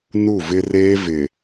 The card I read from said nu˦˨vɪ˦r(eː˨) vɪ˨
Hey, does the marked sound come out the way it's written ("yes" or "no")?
no